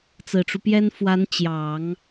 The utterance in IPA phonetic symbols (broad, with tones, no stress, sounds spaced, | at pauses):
t͡s ɹ̩˨˩ ʈ͡ʂ u˦ p j ɛ˥ n f w a˧˥ n t͡ɕ j ɑ˨˩˦ ŋ